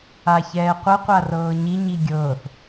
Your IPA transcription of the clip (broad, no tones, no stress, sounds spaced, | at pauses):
a ç ɛː qʷ ə qʷ a r ɤː ɲ i ɲ i ɡʲ ɤː θ